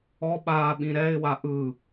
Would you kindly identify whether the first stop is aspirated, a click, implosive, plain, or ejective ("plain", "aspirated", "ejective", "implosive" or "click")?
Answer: implosive